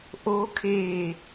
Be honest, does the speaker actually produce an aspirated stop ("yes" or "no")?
yes